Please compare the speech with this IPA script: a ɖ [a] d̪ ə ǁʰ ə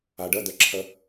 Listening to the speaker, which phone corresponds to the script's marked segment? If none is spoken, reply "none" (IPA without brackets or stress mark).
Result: ə